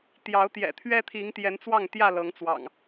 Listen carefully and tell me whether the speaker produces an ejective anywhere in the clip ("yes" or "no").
no